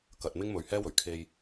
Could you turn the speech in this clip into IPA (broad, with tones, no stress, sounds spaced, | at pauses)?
k ɐ˧ t̚ m ɪ˥ ŋ m ɵ˨ ɥ h ɛː˥ w ɵ˨˩ ɥ kʰ e˧ j